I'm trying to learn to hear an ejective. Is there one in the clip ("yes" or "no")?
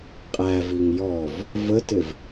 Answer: yes